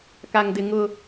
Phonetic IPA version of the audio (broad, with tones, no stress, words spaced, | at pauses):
ka˦ŋdɪ˦ ŋʊ˦